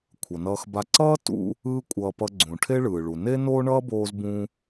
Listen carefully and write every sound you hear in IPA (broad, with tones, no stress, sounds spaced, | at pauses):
kʷʰ ʌ˩ n ʌː˧ x b a˧ ǀ ʌː˥ t ṵ˧ | ɯː˥ kʷʼ ʌː˧ p ʌ˧ ɡ͡ǀ ũ˩ ʈʰ e˥ ɭ ɯː˩ ɭ u˩ n e˥ n oː˥ ɳ ʌː˥ b oː˧ z b ũ˧